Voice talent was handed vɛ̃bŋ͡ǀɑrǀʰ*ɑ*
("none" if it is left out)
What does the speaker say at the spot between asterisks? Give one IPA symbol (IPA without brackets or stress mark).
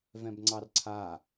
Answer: a